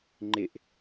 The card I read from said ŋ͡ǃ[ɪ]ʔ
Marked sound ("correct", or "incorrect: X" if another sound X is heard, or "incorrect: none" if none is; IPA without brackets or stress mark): correct